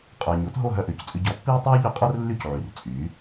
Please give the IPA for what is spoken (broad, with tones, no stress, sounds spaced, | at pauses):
qʼ œː˩ ɲ o˩˥ t ɦ o˥˩ ɦ œ˥˩ ʔ ʏː˩˥ c t͡sʼ ʏ˧ ɟ ɔ˩˥ pː iː˥ tˤ œː˥ ʎ ʏ˩˥ qʼ o˥ r lː y˥˩ c ʕ y˩ r t͡sʼ yː˩˥